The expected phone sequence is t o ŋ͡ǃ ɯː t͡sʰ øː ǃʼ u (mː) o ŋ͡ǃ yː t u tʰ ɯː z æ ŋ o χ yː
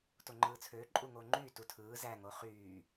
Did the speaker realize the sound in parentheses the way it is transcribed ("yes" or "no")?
no